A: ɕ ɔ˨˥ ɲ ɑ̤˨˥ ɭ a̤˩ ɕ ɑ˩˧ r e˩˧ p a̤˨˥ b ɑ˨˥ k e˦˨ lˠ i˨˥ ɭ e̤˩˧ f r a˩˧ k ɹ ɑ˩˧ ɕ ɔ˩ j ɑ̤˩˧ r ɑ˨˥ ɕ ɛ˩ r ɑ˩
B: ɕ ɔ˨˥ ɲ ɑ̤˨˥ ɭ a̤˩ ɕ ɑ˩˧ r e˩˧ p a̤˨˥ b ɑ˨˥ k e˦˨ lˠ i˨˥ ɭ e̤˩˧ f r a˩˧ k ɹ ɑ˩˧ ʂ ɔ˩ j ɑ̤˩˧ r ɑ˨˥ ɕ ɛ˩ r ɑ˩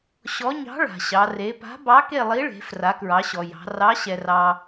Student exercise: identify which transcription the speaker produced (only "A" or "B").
A